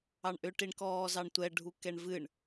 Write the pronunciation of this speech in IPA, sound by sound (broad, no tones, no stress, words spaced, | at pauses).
ɑɳʔʏ ʈiɳkɔːzɑɳtʷɛ ɖʱukɛɳvɨɳ